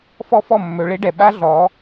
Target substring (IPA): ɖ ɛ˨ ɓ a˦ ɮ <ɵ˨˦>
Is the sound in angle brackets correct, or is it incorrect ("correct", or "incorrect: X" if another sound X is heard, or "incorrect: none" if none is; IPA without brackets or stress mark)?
incorrect: ɔ˨˦